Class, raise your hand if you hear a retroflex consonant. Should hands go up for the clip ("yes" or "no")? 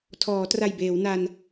no